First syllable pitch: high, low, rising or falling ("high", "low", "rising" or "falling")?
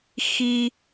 high